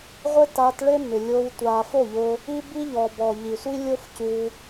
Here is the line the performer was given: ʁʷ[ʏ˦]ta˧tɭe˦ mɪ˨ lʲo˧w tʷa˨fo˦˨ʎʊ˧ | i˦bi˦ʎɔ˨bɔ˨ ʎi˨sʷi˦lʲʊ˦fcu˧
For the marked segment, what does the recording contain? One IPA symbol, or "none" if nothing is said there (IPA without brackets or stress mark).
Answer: ɪ˦